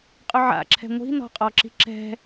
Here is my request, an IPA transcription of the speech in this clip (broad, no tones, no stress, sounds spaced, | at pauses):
qʼ ʊ ʕ a̰ ǁʰ ɛ̤ ŋʷ i̤ n ɔ̤ qʼ ɔ ǁ i̤ ǁ ɛ̤